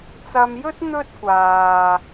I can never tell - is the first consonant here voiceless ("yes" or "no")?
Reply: yes